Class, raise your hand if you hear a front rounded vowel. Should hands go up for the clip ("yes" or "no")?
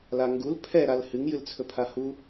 no